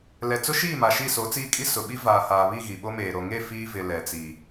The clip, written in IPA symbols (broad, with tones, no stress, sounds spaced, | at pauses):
l ɛ˨ t͡s ʊ˦ ʃ iː˦˨ m a˨ ʃ i˦˨ s o˨˦ t͡s iː˦ kʼ i˦ s ʊ˨ ɓ i˦ v aː˨ h aː˨ β i˦˨ ɣ i˨ ɓ o˦ m eː˨ ɾ o˨ ŋ e˦˨ f iː˦ v ɪ˨ l ɛ˨ t͡s i˨